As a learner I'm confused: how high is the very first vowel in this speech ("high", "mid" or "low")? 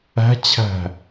low